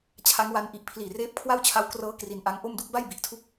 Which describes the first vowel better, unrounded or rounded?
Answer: unrounded